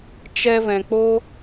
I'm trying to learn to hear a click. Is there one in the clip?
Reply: no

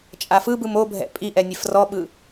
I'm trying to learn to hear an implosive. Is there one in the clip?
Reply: yes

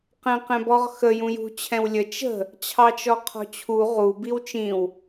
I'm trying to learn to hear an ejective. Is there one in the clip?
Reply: no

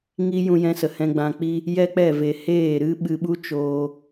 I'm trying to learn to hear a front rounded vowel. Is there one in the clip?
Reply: no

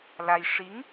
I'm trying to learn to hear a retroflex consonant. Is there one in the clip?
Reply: yes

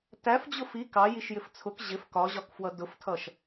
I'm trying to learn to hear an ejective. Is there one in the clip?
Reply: no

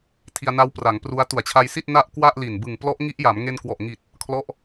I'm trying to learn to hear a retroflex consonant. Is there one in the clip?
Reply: no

